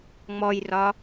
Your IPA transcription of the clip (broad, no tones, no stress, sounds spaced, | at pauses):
ŋ͡m ɔ j r ɒ